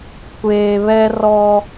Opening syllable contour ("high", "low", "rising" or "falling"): low